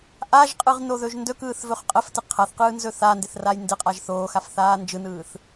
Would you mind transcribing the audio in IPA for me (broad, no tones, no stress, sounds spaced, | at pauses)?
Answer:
ʔ a ʒ qʼ ɯ ʁ n o ð ɵ ʒ n d ɵ k ɯː θ v ɵ χ qʼ ə f t ɪ qʰ a θ q ɯː n z ɵ θ a n d ɪ θ r a j n d ɪ qʼ a ʒ θ oː x a f θ aː n d͡ʒ ɯ n ɯː θ